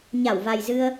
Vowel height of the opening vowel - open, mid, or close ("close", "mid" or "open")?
open